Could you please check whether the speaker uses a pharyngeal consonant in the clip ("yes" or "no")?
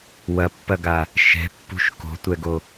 no